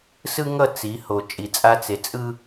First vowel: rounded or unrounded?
unrounded